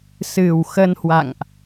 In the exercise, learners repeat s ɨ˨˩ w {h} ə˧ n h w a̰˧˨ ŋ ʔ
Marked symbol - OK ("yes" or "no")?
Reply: no